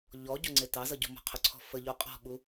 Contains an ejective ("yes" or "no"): yes